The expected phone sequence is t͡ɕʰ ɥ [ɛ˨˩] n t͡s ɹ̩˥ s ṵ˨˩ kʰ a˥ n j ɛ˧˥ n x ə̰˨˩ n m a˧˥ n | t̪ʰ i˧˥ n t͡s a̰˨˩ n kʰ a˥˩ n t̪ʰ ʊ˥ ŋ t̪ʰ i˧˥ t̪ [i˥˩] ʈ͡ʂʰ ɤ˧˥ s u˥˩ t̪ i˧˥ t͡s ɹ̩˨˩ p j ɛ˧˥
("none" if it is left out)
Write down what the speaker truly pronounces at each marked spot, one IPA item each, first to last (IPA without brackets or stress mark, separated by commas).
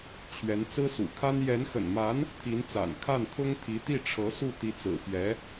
ɛ˧˥, i˥˩